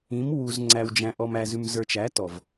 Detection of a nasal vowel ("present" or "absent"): present